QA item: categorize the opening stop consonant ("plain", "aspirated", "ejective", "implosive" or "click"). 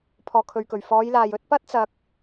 aspirated